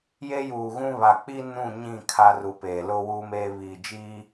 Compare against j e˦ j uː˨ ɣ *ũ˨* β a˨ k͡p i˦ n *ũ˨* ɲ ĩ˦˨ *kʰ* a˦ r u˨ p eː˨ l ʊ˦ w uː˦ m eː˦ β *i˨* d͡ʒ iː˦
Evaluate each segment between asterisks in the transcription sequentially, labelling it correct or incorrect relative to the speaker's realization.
incorrect: ũ˦, incorrect: ũ˦˨, correct, incorrect: i˦˨

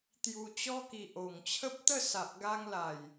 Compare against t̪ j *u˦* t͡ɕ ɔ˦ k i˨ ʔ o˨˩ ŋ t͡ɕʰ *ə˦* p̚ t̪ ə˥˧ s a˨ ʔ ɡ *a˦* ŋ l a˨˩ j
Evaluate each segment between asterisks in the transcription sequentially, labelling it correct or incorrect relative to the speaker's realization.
incorrect: u˧, correct, correct

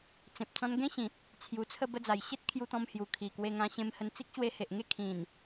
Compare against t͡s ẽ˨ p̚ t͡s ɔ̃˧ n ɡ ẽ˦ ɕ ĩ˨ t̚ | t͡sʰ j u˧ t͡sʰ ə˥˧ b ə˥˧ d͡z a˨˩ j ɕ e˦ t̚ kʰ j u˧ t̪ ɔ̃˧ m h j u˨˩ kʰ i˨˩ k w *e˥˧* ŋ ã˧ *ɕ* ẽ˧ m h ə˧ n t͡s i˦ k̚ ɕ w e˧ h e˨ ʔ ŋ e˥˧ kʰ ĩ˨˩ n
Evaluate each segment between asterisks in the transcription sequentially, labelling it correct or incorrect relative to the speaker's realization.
incorrect: e˧, correct

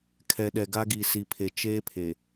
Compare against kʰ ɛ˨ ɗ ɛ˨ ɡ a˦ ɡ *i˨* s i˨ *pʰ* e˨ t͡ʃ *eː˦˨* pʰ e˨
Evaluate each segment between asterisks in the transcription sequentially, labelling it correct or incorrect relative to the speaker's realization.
correct, correct, incorrect: eː˦

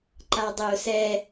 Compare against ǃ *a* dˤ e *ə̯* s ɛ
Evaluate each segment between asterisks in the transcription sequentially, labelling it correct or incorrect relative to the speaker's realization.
correct, incorrect: ʊ̯

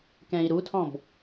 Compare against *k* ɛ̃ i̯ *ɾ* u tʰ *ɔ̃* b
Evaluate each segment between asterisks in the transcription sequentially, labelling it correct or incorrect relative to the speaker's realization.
correct, correct, correct

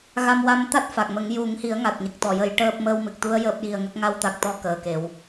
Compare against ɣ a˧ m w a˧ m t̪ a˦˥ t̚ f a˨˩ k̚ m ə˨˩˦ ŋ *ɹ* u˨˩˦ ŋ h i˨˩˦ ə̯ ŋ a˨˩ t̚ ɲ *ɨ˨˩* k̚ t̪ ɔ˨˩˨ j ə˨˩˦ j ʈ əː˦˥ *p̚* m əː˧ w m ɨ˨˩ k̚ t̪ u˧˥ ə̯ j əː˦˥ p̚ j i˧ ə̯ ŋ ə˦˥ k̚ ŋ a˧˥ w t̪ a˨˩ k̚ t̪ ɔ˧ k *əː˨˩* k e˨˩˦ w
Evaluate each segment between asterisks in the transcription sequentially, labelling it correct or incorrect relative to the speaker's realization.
incorrect: j, incorrect: ə˨˩, correct, correct

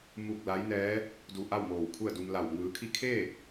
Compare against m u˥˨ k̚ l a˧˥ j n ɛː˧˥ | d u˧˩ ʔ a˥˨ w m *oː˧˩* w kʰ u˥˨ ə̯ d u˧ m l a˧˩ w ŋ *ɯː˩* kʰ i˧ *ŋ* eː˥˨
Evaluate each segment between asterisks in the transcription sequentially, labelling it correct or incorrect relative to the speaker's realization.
correct, incorrect: ɯː˩˧, incorrect: kʰ

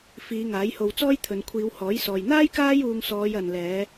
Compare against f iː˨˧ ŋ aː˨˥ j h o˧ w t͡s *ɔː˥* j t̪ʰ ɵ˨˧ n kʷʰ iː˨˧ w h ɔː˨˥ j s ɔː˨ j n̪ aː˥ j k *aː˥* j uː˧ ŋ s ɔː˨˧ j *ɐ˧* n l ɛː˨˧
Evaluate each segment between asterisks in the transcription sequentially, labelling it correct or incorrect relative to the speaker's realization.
correct, correct, incorrect: ɐ˨

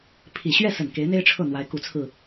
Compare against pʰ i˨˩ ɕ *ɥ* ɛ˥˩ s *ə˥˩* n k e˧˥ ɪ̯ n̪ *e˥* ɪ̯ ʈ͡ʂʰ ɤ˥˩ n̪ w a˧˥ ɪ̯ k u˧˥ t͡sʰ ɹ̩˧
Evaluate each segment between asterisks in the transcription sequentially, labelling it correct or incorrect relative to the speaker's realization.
correct, incorrect: ə˨˩, correct

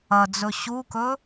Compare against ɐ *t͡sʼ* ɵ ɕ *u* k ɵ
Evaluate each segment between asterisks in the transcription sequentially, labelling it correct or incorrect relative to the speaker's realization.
incorrect: d͡z, correct

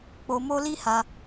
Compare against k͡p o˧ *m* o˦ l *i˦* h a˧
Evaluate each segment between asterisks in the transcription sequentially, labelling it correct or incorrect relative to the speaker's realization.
correct, correct

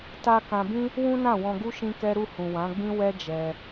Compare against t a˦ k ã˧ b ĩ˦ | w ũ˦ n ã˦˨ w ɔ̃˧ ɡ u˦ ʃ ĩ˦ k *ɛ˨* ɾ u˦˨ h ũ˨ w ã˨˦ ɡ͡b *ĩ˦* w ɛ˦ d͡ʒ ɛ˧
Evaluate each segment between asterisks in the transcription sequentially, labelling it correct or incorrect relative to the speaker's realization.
incorrect: ɛ˦, correct

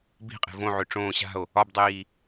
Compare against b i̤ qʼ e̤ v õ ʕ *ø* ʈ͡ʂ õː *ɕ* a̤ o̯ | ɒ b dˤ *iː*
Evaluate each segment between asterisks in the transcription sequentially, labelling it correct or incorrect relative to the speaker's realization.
correct, correct, correct

